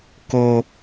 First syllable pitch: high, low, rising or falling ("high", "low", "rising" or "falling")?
high